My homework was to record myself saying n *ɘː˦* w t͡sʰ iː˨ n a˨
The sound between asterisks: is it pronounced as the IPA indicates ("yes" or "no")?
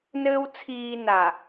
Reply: yes